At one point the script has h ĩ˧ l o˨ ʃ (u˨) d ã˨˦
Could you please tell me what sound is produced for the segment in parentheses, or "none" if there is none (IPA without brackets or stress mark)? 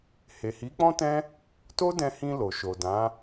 o˨